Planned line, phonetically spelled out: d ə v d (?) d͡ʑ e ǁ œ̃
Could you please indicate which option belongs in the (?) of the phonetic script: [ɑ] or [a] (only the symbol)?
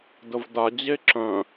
a